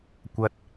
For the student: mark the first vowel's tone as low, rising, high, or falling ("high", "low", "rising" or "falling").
high